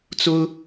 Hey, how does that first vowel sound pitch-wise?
high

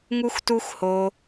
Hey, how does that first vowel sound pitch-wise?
high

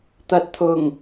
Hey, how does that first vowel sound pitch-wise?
low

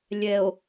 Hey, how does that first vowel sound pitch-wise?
low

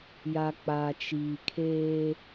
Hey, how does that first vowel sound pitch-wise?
low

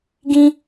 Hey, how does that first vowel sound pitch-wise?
high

